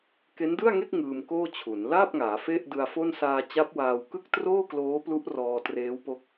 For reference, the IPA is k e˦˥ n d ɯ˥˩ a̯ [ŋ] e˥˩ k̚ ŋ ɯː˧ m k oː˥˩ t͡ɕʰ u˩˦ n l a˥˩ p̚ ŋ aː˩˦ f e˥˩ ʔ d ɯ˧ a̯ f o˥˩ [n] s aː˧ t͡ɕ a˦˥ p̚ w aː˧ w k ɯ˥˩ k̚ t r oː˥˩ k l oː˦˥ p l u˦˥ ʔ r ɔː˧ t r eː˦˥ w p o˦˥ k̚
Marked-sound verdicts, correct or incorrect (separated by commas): correct, correct